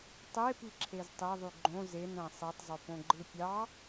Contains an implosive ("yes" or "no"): no